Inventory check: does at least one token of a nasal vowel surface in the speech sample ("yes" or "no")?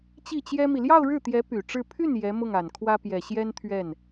no